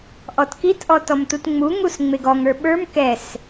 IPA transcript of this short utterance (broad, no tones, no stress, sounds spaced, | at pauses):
ʔ ɔ t k i t ʔ ɔ t ɔ m t u t ŋ͡m u ŋ u s ŋ͡m e ɡ ɔ ŋ ə˞ ɓ ə˞ m k ɛ s